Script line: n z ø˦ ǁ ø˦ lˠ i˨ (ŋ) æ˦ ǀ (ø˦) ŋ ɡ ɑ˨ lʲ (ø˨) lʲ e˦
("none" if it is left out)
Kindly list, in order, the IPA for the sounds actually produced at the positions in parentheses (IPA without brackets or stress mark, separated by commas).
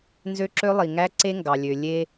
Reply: ŋ, e˦, ø˨